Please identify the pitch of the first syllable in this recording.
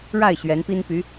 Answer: falling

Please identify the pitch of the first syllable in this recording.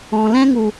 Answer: low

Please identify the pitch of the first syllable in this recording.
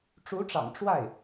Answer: rising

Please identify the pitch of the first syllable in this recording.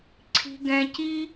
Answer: low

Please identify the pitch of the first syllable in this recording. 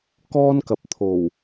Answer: high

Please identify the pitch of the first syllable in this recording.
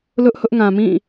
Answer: high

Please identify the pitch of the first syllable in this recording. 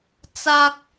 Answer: high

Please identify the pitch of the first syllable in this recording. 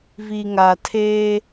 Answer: low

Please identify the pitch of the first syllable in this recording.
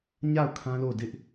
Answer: falling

